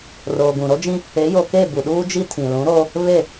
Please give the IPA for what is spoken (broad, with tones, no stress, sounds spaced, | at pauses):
r oː˨ ɡ ũ˨ ɾ o˦ d͡ʒ ĩ˦ | e˨˦ j o˨ k e˦˨ b u˨ ɗ uː˦ d͡ʒ i˦ tʰ ĩ˨ l ũ˨˦ ɾ oː˦ | β e˦˨